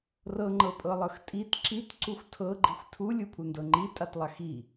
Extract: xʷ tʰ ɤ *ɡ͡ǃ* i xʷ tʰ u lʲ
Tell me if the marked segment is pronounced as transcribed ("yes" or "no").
yes